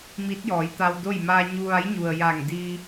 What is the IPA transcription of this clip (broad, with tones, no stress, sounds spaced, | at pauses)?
m i˧˥ t̚ j ɔː˩˧ j t̪ a˧ w d o˥˨ j m aː˧ ɲ u˧ ʋ a˧˥ j ɲ u˩ ə̯ j a˧˩ ŋ d iː˧